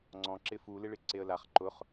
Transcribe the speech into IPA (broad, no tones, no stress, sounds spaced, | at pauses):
ŋ͡ǀ ɔ̃ ǁ ɪ f u l ɪ ɭ ɪ ǀ e ə̯ l a χ ǃ ʊ χ